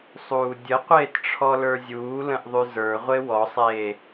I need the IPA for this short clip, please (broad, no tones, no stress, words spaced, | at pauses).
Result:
sˤuːdʲəqʷeːt ʈ͡ʂʰɔlə˞zʲuːlə̃ʔ ðˤyzə˞ʁʷe wɔsˤeː